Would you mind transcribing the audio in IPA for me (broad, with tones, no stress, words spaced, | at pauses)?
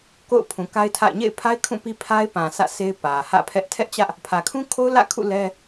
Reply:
ko̰˦˨ʊ̯pʰũ˨ka˦ɪ̯ tʰa̰˦˨ɪ̯ ɲḛ˦˨ɪ̯pʰa˦ɪ̯ kʰũ˦˨pi˦pʰa˦ɪ̯pã˨ sʰä̰˦˨sʰe˦ɪ̯ pä˨hä̰˦˨pʰɛ˦ʔ tʰɛ˦ʔt͡ɕä˦ʔ | pʰä˨kʰũ˦kʰo˦ʊ̯ lä̰˦˨kʰṵ˦˨ lɛ˦